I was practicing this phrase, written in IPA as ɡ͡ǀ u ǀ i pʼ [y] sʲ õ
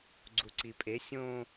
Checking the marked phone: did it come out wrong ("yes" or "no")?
yes